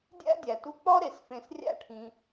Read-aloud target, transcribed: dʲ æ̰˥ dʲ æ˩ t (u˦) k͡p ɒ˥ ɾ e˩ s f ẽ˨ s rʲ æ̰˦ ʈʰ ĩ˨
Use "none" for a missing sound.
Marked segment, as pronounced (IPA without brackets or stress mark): u˦